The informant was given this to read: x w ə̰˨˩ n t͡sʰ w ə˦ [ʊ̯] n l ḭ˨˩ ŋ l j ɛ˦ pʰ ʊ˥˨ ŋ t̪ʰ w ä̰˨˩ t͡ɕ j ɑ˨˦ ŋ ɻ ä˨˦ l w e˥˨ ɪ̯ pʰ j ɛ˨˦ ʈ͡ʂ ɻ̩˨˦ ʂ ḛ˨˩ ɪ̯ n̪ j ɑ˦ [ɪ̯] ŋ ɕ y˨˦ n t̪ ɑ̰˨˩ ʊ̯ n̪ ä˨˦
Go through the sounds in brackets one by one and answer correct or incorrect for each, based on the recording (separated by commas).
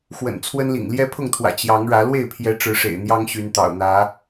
incorrect, incorrect